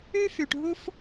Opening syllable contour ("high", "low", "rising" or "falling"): high